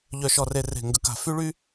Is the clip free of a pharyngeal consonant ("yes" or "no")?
yes